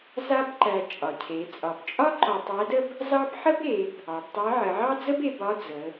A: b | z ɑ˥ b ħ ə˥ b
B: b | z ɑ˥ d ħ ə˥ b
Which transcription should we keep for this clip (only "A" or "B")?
A